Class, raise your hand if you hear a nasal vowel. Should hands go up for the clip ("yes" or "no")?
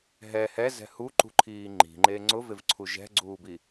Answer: no